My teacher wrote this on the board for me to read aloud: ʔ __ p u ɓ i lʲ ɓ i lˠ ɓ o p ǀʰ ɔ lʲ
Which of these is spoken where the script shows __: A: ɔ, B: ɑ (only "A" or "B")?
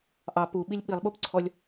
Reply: B